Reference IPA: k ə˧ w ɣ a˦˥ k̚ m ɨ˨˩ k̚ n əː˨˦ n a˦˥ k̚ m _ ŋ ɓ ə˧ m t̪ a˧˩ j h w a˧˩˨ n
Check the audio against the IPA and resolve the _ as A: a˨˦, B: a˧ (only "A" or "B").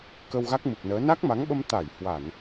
A